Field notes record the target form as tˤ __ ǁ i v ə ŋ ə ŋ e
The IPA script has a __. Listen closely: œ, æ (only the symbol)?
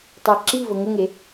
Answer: æ